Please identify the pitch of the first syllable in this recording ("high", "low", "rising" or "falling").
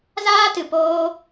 high